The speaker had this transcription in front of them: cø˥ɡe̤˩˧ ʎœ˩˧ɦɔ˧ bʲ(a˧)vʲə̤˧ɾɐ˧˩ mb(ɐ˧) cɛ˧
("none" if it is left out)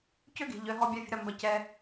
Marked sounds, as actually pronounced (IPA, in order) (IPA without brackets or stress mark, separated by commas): a˧, ɐ˧